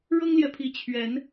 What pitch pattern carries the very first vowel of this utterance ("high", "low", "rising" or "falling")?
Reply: high